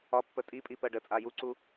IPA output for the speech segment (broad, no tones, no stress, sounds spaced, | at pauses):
ɒ pː ə tʼ i pʼ i p ɜ ɖ ə t͡sʼ a j u ǀ u